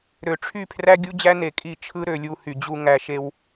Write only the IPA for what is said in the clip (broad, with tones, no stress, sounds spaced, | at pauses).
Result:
ɾ ø˨ ʈ͡ʂʰ y˦˨ pʰ r æ˦ ɡʲ u˦ d͡ʑ æ˦ n e˧ kʼ i˦˨ t͡ʃʰ ɯ˦ ɾ ø˦˨ lʲ u˧ h y˨ d͡ʑ u˧ ŋ æ˧ ʃ e˧ w